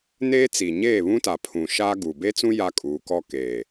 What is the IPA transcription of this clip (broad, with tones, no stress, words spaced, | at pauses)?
neː˦t͡siː˨ ɲeː˦˨βũ˦ta˨ pʰũ˨ ʃaː˦ ɡu˨ be˦t͡sũ˦ ja˦kʼuː˨˦kɔ˦ keː˨